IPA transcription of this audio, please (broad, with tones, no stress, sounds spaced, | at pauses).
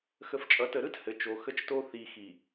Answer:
x ə˨ f t͡ʃʼ ʌ˨ t ə˨ ɾ ɯ˦ t h ɘ˨ t͡ʃ o˨ x ə˦ t͡ʃ t o˦ θ i˨ x i˨